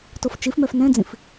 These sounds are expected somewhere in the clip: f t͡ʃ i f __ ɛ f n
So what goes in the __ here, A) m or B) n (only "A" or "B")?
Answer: A